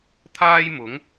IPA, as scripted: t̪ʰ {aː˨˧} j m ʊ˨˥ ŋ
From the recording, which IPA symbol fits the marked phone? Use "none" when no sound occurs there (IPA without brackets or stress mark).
aː˥